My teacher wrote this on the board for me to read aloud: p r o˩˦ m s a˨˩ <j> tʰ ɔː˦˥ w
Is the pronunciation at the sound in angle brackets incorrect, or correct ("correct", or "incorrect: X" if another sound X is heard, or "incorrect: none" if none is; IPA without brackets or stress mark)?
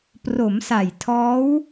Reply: correct